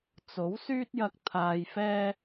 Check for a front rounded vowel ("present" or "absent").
present